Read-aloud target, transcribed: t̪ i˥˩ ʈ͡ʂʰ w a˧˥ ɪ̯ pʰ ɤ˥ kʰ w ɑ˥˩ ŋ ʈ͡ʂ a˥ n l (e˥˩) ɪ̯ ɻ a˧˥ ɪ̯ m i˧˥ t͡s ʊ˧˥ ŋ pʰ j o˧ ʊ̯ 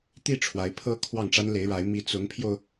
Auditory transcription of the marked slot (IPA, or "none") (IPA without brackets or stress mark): e˧˥